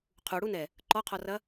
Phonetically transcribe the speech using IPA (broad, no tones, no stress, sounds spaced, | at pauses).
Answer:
qʰ u ɽ u n ɛ | ǃ ɔ qʰ ɔ r ɐ